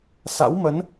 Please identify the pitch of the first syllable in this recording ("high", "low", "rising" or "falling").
rising